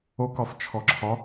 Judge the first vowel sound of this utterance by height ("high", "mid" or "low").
mid